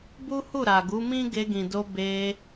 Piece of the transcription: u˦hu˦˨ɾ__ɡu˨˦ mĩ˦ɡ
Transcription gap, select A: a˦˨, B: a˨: B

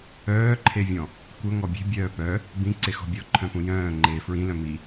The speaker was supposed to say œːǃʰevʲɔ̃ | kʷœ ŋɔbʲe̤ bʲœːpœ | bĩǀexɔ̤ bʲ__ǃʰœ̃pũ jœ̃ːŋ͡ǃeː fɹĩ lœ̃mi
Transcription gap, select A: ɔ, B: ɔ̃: A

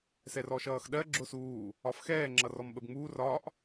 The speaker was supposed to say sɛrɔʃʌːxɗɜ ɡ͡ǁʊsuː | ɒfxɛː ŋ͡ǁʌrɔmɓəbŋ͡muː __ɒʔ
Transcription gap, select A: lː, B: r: B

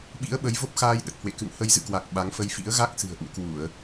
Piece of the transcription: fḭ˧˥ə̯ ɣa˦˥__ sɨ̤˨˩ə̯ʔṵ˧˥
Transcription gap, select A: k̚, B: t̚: A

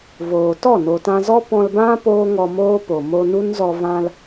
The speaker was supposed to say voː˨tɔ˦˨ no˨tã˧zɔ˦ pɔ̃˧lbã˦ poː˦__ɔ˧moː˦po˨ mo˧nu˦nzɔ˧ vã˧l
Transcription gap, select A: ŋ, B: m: A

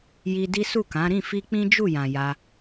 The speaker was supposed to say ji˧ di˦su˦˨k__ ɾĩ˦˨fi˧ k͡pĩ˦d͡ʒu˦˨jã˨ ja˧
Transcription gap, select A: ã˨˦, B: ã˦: A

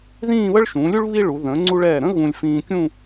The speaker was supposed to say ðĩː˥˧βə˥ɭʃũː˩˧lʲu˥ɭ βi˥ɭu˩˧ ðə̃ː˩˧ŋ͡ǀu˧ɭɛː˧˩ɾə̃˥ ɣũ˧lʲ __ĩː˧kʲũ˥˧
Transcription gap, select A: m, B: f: B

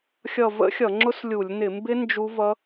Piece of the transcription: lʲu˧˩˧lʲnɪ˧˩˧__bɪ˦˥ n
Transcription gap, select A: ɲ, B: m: B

